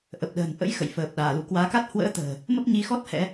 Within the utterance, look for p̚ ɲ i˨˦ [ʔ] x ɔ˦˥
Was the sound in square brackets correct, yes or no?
no